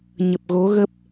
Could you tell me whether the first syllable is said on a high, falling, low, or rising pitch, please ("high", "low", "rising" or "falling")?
low